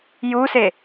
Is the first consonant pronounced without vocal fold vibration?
no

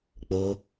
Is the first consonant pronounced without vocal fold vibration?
yes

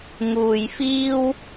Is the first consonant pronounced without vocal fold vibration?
no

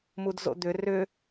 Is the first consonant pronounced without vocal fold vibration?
no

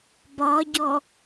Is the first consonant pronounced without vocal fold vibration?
no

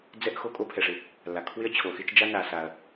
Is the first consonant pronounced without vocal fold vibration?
no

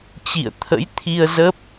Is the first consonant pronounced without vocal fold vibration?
yes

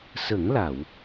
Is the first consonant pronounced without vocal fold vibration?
yes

